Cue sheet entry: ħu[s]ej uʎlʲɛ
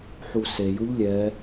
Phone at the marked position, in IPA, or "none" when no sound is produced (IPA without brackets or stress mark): s